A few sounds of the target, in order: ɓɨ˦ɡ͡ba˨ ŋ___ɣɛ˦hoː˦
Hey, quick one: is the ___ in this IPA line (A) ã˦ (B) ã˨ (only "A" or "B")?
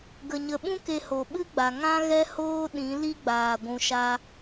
A